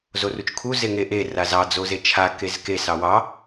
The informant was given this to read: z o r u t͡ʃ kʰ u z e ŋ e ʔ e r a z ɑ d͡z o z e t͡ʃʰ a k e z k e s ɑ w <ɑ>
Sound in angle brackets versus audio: correct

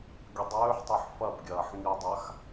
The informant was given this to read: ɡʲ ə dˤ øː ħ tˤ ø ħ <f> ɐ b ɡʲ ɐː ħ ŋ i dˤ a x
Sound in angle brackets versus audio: correct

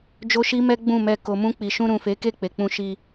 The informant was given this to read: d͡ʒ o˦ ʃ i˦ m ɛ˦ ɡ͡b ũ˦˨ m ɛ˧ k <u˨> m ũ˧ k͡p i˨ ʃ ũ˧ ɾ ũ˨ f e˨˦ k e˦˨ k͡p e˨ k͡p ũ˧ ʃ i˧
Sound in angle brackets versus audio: incorrect: o˨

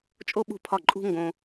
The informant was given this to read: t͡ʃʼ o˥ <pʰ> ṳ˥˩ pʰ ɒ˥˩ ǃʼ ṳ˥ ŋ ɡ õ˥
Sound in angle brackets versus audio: incorrect: ɓ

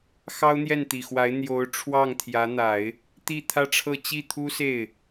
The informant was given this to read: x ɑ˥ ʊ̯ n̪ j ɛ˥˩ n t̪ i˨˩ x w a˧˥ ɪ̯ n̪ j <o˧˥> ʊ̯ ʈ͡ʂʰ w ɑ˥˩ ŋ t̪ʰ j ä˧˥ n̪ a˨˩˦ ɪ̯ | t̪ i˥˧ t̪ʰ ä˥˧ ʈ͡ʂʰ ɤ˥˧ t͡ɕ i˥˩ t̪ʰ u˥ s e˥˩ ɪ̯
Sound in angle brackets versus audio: correct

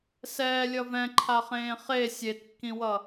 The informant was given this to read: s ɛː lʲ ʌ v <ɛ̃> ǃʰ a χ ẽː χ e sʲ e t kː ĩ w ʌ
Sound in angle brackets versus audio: correct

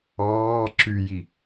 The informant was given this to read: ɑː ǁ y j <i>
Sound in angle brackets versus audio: correct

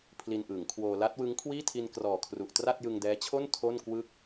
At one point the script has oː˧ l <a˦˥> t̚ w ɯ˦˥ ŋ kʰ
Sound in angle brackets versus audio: correct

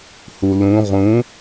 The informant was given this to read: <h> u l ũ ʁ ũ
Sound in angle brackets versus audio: correct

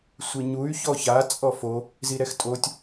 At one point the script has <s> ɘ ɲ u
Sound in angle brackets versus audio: incorrect: sʷ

